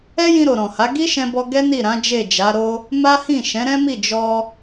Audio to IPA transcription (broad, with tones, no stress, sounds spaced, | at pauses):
ɛ˦ j ĩ˧ ɾ o˨ ɾ ɔ̃˨ h a˨˦ ɡ i˦ ʃ ɛ̃˧ b ɔ˧ ɡ ɛ˦ n i˦˨ ɾ ã˨˦ d͡ʒ e˦˨ d͡ʒ a˨˦ ɾ o˦ | m a˦ h ĩ˦˨ ʃ ɛ̃˨˦ ɾ ɛ̃˦ m i˦˨ d͡ʒ ɔ˧